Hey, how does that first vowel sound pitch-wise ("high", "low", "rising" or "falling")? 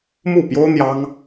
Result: falling